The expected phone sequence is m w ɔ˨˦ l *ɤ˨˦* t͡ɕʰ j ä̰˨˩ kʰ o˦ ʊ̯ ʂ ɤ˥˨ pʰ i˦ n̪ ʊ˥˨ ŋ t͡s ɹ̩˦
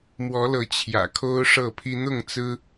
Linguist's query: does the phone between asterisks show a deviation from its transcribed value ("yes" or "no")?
no